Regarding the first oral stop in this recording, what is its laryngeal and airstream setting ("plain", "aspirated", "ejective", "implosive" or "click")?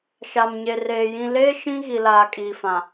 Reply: ejective